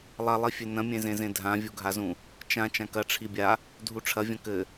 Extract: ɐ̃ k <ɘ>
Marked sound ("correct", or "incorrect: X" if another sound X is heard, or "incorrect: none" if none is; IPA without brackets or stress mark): correct